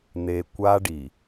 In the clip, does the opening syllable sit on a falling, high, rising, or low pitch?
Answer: low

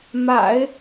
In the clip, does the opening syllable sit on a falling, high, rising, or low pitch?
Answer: low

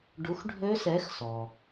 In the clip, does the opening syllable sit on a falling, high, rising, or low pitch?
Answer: rising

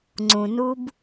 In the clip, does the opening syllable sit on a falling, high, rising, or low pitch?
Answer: low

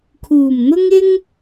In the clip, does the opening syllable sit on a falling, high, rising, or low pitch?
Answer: low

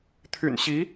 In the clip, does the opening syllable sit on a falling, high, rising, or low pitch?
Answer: low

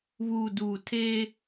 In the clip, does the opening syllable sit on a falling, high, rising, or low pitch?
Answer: low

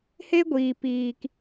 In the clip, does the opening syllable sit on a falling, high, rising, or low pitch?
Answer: high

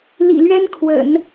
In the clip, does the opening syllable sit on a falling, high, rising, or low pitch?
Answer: low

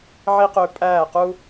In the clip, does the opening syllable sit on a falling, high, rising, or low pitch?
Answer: high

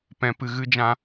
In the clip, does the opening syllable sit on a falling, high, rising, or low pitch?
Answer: low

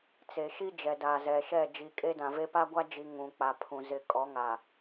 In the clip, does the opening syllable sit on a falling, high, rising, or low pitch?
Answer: low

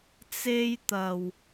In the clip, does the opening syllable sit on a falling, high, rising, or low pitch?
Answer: high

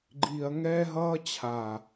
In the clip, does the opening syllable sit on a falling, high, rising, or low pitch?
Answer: low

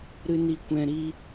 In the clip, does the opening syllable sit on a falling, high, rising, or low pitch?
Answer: low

